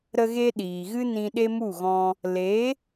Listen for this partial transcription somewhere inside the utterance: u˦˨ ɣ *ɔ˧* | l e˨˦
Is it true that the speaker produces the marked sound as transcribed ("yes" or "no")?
no